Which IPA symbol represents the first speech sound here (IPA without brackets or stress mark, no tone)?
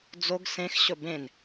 d͡z